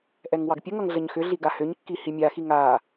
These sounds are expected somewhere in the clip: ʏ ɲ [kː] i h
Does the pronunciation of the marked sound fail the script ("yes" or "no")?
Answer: no